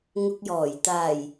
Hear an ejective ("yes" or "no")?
no